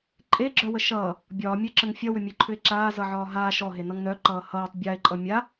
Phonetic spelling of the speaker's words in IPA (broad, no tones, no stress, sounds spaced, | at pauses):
ǃʼ e ɡ͡ǁ œ w ə ʃ ʌː | bʲ ɒː mʲ œ ǁ ə ŋ fʲ ʌ w ʏ mʲ e ǃʰ ʏ e̯ ǁ aː z ʌ ʕ ɒː ɦ aː ʃ ɔ ɦ e n ʌ ŋ n œ ǃ ʌː h ʌː tˤ bʲ a e̯ ǃʼ ʌ mʲ a